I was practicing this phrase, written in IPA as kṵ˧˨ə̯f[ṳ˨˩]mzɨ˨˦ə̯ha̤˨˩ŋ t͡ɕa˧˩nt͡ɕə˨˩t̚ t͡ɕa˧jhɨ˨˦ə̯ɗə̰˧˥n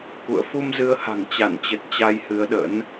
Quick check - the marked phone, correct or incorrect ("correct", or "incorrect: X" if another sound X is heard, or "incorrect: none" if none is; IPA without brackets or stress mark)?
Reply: incorrect: u˧